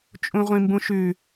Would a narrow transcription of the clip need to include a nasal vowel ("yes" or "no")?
yes